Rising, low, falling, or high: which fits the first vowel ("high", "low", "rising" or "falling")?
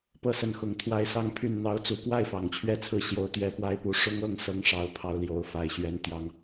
falling